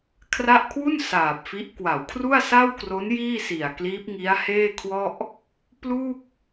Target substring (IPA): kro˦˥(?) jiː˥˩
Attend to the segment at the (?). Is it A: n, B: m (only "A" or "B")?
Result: A